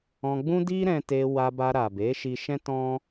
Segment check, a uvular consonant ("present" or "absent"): absent